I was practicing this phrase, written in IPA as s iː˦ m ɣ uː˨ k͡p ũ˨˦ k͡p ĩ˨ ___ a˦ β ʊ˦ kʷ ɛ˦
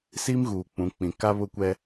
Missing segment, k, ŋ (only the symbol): k